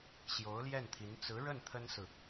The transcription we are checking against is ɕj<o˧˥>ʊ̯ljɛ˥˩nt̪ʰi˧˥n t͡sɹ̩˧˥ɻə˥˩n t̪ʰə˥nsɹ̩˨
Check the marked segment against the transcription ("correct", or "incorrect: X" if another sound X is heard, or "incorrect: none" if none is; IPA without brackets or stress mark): correct